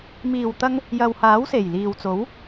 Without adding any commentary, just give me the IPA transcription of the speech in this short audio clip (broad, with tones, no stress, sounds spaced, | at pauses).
m iː˨˩ w t̪ ɐ˧ ŋ | j ɐ˨ w h aː˨˥ w s e˨˩ j l iː˨ w t͡s o˨˥ w